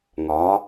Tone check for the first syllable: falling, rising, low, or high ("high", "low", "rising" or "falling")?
rising